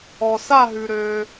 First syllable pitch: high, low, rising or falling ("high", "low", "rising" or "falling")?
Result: low